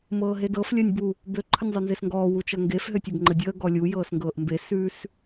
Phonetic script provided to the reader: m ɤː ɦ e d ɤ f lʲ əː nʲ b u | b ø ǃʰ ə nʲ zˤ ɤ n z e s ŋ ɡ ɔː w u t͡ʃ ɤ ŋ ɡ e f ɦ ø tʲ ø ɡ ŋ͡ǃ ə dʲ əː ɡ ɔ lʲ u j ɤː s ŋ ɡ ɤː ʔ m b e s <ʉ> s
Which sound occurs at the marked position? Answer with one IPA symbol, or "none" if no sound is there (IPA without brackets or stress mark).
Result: ʉ